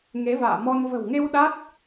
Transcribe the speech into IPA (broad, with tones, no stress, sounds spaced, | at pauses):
ŋ e˨˦ v a̰ː˧˨ m ɔ˧ n v ə̤˨˩ w ŋ e˧ w ɗ a˦˥ t̚